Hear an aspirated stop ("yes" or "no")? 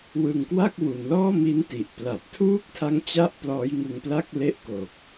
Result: yes